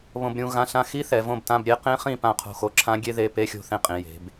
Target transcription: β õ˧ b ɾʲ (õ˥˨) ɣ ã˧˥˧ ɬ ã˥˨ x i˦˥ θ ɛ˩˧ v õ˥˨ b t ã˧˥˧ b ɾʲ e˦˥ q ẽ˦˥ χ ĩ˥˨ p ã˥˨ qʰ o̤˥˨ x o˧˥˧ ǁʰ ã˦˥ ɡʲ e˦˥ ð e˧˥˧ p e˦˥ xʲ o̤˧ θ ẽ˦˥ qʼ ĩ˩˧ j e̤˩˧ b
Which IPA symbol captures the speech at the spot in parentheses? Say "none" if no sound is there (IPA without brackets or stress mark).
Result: ũ˥˨